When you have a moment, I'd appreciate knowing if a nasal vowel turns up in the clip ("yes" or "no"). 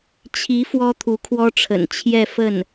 no